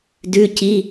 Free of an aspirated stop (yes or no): yes